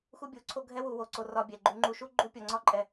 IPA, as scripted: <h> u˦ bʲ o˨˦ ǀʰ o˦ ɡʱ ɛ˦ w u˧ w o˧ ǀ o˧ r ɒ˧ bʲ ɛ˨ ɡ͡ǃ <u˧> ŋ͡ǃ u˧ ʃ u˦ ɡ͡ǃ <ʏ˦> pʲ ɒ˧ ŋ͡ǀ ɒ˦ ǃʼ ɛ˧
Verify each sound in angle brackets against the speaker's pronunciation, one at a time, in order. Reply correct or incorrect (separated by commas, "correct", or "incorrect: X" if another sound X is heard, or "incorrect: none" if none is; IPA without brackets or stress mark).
incorrect: x, correct, incorrect: u˦